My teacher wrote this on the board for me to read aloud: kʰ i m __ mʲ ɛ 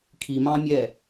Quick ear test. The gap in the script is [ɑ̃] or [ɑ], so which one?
ɑ̃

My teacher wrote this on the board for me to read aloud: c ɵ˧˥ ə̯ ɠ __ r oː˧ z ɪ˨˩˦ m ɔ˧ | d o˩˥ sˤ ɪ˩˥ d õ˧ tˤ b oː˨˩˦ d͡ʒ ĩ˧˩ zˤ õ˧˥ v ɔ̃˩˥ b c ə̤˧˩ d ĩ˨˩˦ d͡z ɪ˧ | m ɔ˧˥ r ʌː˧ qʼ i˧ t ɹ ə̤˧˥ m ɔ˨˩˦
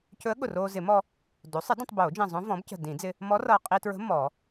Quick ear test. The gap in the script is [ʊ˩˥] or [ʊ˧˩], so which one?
ʊ˧˩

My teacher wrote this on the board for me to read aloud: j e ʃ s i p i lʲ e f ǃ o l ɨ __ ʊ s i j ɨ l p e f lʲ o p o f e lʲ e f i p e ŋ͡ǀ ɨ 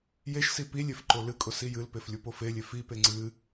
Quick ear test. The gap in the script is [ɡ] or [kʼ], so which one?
kʼ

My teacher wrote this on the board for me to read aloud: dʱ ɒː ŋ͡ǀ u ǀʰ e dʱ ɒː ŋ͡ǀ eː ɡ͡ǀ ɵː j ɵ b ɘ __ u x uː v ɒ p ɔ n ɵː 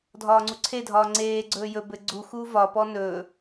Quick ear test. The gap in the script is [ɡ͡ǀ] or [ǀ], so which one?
ɡ͡ǀ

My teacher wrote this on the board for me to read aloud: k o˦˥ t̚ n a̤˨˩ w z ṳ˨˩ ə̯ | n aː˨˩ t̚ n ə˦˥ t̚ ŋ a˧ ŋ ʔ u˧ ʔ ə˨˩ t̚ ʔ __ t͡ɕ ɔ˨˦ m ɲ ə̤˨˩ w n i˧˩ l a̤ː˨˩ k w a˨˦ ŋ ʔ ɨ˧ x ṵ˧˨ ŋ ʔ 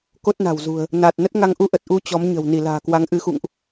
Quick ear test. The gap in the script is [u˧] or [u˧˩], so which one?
u˧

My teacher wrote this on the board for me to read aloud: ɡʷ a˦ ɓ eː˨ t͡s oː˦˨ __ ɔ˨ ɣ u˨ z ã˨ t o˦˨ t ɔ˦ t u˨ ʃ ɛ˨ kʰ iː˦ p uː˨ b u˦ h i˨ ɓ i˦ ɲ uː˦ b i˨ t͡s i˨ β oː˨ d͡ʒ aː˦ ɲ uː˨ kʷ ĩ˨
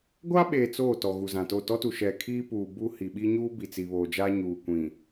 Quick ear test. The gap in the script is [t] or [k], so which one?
t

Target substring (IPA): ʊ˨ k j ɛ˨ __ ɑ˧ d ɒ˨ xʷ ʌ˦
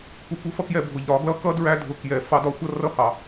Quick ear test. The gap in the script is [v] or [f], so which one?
f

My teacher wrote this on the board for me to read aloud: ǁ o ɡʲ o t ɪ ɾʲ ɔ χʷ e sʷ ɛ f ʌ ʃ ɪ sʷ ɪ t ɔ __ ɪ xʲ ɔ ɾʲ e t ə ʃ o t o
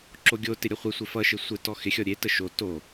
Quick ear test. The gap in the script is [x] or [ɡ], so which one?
x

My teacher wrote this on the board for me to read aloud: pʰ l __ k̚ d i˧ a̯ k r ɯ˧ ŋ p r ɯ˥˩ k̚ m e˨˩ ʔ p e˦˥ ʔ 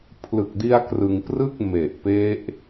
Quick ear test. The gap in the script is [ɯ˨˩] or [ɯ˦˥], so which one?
ɯ˨˩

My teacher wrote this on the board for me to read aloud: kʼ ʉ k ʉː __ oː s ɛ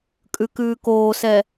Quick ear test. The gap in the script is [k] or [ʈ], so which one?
k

